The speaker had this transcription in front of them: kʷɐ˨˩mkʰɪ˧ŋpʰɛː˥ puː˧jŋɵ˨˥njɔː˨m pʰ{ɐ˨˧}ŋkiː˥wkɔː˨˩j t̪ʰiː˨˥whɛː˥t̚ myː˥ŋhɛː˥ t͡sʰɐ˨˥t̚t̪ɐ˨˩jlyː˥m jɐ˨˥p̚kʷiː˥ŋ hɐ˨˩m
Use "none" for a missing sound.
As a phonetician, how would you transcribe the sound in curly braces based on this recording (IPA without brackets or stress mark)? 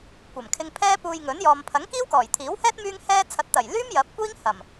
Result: ɐ˨˥